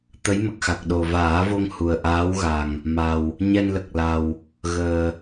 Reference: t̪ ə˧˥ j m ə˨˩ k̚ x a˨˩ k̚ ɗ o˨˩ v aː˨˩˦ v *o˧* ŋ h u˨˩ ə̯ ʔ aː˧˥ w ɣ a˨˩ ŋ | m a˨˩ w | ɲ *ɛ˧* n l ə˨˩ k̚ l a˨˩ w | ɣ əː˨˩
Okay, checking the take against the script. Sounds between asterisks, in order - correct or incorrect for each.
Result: correct, correct

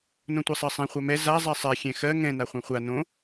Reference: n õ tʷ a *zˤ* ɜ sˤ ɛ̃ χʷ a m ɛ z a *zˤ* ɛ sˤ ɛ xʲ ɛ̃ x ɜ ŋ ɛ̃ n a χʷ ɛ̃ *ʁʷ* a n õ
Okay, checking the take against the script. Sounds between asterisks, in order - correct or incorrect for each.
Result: incorrect, correct, incorrect

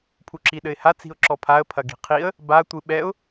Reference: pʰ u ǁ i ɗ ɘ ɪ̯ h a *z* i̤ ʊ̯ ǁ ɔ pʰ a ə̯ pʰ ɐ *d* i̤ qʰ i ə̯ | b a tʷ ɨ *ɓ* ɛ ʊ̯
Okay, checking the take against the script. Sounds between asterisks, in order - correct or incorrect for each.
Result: incorrect, incorrect, correct

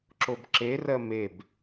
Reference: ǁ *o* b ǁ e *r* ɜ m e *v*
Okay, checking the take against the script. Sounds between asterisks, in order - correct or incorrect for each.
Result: correct, correct, incorrect

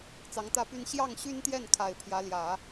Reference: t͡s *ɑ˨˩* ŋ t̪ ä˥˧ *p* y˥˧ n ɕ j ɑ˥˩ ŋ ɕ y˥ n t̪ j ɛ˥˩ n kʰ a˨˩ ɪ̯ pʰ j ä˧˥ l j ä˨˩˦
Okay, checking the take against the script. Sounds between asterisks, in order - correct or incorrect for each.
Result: incorrect, correct

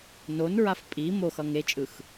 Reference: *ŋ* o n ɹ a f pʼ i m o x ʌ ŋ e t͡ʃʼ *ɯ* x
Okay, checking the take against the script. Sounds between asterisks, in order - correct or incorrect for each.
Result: incorrect, correct

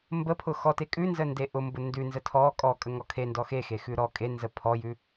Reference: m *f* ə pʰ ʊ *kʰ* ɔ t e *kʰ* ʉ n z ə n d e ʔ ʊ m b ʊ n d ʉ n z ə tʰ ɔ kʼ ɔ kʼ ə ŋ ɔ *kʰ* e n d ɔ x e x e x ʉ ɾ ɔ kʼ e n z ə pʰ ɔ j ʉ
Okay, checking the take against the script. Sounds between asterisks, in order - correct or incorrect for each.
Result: incorrect, incorrect, incorrect, correct

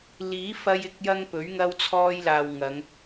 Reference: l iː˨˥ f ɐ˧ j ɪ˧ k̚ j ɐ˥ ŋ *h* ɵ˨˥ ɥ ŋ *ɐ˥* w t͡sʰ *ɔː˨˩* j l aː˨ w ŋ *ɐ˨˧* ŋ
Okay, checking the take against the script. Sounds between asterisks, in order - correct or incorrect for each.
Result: incorrect, correct, incorrect, correct

